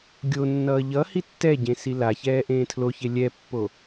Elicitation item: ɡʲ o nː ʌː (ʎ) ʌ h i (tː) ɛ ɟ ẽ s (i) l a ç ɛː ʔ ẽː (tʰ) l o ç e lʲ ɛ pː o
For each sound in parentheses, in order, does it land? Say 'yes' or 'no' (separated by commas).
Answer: yes, yes, yes, yes